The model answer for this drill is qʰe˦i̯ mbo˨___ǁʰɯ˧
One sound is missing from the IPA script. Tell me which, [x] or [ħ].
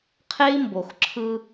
x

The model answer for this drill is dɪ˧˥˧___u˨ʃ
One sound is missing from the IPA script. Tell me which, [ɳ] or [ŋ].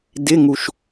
ŋ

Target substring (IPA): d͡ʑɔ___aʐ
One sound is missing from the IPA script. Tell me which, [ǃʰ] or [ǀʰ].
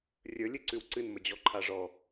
ǃʰ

